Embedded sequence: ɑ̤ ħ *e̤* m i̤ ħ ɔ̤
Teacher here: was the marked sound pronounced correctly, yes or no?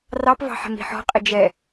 no